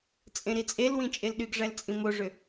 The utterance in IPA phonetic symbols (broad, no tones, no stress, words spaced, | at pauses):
t͡sʼẽɾit͡sʼelwĩ t͡ʃʼelɗyɡʐæl t͡sʼĩmoʐø